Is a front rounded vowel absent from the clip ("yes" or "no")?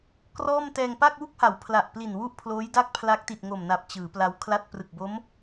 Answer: yes